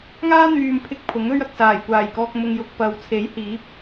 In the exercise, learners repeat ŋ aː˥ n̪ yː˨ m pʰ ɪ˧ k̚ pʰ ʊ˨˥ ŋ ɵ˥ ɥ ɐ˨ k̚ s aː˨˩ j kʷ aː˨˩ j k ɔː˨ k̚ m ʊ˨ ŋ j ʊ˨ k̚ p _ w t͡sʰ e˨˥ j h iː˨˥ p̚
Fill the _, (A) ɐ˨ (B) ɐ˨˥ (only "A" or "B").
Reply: A